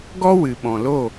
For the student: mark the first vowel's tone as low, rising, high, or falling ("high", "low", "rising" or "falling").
high